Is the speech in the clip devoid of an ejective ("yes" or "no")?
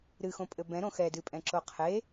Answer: no